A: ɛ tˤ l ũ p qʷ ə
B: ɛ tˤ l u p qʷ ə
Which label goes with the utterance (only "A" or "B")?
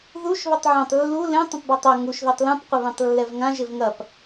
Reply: A